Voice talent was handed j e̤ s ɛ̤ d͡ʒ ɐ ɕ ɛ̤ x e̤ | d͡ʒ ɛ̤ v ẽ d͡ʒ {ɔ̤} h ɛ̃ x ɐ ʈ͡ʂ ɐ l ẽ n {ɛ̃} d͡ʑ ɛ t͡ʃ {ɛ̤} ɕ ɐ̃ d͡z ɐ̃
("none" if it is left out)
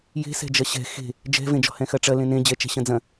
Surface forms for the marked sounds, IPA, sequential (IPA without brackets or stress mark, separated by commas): ɔ̤, ẽ, ɛ̤